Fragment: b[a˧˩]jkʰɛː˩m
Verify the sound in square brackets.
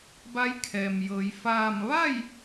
incorrect: a˧˥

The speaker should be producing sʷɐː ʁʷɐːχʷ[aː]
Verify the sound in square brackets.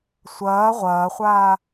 correct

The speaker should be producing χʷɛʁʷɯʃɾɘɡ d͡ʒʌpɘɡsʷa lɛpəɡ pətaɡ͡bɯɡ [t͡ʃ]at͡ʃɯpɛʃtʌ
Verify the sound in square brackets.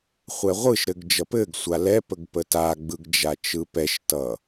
incorrect: d͡ʒ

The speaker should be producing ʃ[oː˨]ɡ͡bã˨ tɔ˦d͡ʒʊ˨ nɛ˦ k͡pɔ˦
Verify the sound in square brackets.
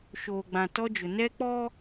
correct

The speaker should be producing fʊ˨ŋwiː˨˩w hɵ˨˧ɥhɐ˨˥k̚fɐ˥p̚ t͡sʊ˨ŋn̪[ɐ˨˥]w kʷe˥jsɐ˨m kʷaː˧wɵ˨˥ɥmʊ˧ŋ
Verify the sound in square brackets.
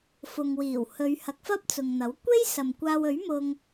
correct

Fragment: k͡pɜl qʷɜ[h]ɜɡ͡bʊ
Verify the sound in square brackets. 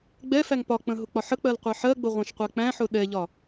incorrect: ħ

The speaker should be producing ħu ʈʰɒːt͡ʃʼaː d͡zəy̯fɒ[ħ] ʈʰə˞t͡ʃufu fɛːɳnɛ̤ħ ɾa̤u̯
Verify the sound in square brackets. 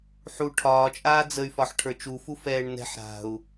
correct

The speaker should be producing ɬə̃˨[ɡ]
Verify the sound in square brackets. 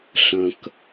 incorrect: k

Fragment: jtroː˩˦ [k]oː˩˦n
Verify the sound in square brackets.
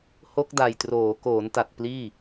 correct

